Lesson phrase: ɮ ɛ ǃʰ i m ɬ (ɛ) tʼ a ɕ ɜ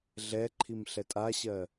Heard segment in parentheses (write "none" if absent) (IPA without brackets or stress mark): ɛ